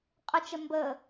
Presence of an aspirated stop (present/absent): absent